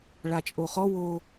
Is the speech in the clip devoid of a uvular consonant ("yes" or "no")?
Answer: no